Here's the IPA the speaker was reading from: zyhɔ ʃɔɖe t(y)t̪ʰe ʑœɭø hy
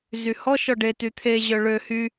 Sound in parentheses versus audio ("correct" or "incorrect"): correct